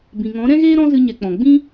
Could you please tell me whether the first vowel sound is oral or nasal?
nasal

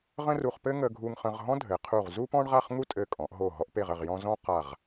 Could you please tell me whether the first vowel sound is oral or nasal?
nasal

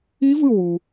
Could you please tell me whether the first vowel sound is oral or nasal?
oral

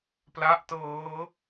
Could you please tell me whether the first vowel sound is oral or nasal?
oral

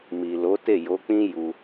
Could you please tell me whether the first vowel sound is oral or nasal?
oral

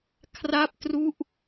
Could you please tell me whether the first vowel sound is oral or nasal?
oral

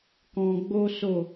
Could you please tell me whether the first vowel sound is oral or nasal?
nasal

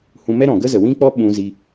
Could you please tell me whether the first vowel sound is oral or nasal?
nasal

